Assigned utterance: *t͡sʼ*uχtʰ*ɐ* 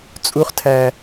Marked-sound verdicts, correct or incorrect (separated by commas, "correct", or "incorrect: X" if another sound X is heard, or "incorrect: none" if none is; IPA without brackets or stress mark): correct, incorrect: æ